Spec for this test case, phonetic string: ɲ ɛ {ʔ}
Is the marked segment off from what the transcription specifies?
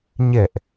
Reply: no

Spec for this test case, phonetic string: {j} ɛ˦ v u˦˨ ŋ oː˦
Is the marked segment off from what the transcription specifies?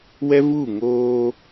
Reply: yes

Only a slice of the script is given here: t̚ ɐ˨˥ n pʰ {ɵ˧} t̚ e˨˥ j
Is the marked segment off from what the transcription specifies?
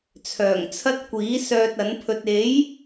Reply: no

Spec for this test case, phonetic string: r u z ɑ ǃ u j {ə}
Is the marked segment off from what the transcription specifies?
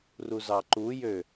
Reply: yes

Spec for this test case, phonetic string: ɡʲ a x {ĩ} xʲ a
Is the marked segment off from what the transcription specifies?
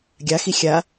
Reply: yes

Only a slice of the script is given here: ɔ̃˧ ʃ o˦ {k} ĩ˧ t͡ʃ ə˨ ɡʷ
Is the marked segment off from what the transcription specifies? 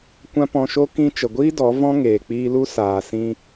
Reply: no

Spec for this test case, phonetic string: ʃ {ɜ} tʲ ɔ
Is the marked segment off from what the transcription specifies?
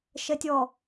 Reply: no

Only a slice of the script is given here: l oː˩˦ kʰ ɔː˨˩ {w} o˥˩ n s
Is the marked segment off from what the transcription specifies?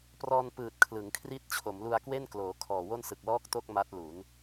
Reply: no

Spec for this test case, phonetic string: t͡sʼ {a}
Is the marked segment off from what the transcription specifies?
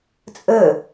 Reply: yes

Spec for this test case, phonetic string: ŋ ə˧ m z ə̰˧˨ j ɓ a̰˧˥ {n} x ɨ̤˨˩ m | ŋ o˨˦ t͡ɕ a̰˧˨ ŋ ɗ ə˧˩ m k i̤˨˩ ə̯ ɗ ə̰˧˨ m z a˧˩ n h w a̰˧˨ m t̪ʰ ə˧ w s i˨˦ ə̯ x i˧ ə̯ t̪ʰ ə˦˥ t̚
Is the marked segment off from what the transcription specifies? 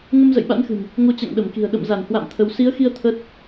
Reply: no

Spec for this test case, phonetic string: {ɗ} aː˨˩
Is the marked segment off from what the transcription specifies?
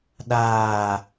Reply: no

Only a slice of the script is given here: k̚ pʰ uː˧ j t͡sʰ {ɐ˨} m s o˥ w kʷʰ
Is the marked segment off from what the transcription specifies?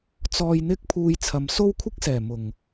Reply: no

